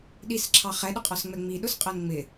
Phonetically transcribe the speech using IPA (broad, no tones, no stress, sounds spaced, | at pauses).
ɗ i s ǁʰ ɑ χ ɛ ɗ ʊ qʼ ɒ s ŋ͡m ɛ ŋ͡m i ɗ ʊ s qʼ ɜ n ŋ͡m ɪ